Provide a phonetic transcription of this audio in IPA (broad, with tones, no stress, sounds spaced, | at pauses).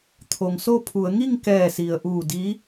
t̪ʰ o˩ ŋ s o˥˨ pʰ u˩˧ ə̯ ŋ i˥˨ ŋ k ɛː˧˩ s i˩ ə̯ ʔ uː˧˩ d i˧˥